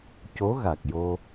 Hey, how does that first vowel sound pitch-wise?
rising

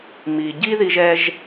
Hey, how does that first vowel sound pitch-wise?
low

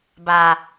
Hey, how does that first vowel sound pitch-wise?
low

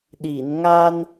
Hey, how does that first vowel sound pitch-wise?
low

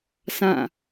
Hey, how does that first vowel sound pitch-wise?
falling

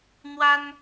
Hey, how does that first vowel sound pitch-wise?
high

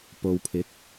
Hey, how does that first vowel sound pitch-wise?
low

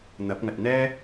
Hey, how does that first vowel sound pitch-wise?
rising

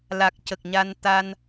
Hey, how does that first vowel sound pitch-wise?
low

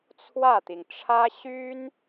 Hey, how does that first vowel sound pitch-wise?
falling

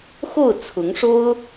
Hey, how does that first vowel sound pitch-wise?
falling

